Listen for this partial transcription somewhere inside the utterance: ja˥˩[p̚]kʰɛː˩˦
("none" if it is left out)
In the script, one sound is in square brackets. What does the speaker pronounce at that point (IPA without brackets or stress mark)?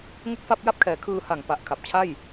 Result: p̚